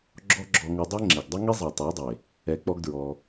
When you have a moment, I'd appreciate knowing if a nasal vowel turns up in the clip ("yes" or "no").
no